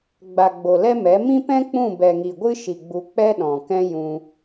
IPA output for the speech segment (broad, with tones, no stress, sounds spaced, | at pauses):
ɡ͡b a˨ ɡ͡b o˨ l ɛ˦ m ɛ˨˦ m ĩ˦ p ɛ̃˦ k͡p ũ˦˨ b ɛ˨ ŋ i˨ ɡʷ ɨ˦ ʃ i˨ ɡ͡b u˧ k͡p ɛ˦ ɗ ɔ̃˨ k ɛ̃˦ j ũ˧